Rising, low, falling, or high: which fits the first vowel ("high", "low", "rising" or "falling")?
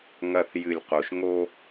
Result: low